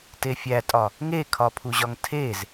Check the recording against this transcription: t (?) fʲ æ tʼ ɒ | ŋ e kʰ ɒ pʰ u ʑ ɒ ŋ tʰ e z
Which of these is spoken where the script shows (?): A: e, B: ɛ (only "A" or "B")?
A